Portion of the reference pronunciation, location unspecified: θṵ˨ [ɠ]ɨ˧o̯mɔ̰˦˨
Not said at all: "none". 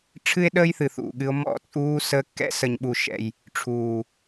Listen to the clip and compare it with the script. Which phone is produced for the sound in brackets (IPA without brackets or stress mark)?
ɠ